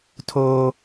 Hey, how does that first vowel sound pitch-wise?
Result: high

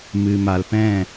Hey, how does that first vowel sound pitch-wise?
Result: low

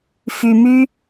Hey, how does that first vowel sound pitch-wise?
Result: low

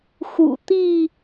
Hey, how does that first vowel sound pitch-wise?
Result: low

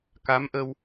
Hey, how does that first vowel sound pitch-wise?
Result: rising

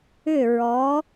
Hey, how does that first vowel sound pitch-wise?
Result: falling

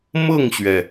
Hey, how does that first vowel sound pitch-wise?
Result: falling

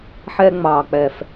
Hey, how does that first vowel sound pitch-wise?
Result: high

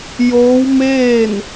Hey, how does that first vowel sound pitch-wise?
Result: rising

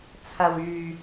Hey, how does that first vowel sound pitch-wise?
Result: low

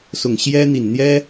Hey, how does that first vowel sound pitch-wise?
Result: low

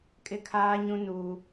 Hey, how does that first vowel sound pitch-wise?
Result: high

